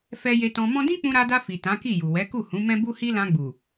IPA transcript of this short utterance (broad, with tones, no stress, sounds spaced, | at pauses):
f ɛ˧ j e˧ t ɔ̃˧ m ɔ̃˦ d ĩ˦ k͡p ũ˧ ɾ a˧ d a˧ f i˨ t ã˨˦ k i˦˨ j u˨ w ɛ˨˦ k u˦˨ h ũ˨˦ m ɛ̃˦ b u˦ h i˦ l ã˧ ɡ͡b u˨